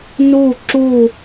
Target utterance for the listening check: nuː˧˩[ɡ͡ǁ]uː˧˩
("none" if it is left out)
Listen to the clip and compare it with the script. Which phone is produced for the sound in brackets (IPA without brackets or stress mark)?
ǁ